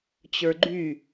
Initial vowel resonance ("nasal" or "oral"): oral